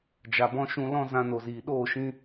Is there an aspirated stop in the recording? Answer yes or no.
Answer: no